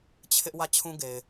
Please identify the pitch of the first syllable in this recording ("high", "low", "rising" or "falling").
high